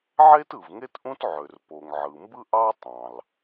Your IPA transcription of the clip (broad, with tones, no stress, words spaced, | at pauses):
ʕe˥tɯ˩v ŋe˥tʔũ˥t ʕø˩r po˩ŋʕɯ˩mbɯ˥ ʔɑ˥tˤɑ̃˩l